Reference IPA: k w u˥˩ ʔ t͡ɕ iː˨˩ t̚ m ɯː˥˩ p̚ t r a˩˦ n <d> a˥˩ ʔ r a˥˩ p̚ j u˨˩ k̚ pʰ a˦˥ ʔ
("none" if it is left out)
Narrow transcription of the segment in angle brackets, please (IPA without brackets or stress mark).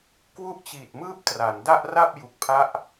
d